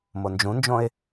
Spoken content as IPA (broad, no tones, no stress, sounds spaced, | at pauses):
m o n d͡ʒ ũ n d͡ʒ õ ɪ̯